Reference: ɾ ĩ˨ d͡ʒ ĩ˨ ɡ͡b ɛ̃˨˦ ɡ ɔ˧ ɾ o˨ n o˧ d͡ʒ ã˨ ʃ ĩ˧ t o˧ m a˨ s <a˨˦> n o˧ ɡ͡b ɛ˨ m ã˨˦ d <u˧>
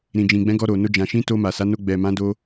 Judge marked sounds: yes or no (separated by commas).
yes, no